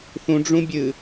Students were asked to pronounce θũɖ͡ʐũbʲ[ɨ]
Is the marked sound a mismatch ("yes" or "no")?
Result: no